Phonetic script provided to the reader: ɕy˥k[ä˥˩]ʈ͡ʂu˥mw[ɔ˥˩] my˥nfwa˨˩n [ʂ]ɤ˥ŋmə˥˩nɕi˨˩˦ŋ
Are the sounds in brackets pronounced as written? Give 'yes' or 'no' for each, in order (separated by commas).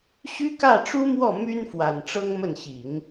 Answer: yes, yes, no